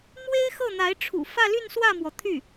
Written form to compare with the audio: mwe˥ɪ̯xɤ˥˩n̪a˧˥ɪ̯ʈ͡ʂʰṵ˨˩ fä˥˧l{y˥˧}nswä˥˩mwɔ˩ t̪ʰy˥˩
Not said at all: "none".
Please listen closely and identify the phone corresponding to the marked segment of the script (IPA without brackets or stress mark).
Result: y˥˧